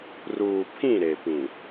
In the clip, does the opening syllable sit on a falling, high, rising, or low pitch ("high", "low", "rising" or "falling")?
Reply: low